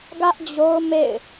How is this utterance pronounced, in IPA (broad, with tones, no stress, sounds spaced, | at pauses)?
ɡ ä˦ ʔ d͡ʑ o˦ ʊ̯ m ḛ˦˨ ɪ̯